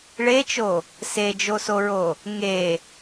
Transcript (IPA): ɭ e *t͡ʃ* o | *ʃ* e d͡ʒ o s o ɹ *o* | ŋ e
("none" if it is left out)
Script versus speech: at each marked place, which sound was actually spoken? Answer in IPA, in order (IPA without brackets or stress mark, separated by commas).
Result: t͡ʃ, s, o